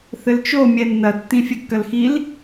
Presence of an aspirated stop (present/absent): absent